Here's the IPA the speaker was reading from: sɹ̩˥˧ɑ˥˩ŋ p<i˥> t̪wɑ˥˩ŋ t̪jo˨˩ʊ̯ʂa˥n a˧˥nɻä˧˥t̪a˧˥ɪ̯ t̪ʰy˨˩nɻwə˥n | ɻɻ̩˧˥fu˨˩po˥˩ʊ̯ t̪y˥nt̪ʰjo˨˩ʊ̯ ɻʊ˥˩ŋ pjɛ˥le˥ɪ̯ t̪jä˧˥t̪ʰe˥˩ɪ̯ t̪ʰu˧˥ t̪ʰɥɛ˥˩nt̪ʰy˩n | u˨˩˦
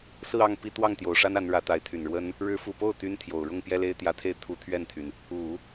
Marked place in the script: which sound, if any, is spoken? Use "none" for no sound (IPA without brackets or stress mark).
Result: i˥